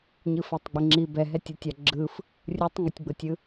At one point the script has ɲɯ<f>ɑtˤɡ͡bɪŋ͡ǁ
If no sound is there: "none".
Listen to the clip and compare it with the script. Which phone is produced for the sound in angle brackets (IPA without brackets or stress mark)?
f